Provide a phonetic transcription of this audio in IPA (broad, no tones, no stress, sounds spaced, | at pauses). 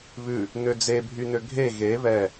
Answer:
β ʉ | n ø d͡z e bʱ y n ø ɡʱ e ɣ e β ɛ